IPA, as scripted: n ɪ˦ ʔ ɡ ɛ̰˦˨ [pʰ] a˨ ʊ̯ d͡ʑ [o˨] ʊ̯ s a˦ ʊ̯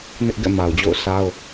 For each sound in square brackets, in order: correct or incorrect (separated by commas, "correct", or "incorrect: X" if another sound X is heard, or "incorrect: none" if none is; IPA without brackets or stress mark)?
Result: incorrect: m, incorrect: o̰˦˨